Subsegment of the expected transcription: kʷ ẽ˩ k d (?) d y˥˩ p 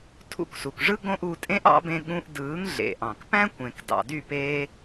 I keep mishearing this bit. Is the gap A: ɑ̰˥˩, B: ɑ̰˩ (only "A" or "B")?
B